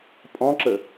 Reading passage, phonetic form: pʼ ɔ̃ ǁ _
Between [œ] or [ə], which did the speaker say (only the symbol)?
ə